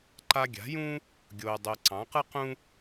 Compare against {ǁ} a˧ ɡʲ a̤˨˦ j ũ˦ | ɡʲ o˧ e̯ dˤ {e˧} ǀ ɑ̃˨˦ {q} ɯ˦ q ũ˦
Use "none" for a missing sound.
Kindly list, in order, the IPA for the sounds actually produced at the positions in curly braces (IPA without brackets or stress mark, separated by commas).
ǃ, e˧, q